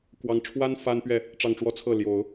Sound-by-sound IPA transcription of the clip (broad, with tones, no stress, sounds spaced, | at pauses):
k w ɑ˧˥ ŋ ʈ͡ʂʰ w a˥ n f a˥ n p ɥ ɛ˥˩ | ʈ͡ʂ ɑ˥˧ ŋ ʈ͡ʂ w ɔ˥˧ t͡sʰ ɤ˥˩ l j o˨˩˦ ʊ̯